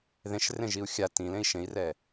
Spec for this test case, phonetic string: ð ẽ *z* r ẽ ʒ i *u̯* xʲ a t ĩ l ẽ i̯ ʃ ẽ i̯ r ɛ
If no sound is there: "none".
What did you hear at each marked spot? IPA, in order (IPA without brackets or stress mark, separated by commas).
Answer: ʃ, u̯